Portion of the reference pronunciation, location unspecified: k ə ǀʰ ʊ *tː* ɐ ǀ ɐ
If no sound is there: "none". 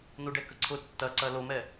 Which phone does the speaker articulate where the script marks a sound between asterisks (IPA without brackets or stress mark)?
tː